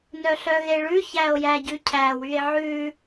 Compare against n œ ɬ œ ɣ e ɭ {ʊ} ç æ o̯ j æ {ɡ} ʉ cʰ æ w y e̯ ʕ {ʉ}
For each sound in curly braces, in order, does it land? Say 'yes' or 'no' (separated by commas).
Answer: no, no, yes